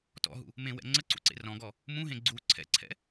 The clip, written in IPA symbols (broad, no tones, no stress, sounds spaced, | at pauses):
t ɔ̰ ɦ ṵ | m ẽ w ɛ̰ ŋ͡ǀ ə ǀ ṵ ǀ ḛ r ɔ̃ ɡ ɔ | m ũ ɦ ẽ ɡ͡ǀ u ǀʰ ɛ̰ ǀʰ ɛ̰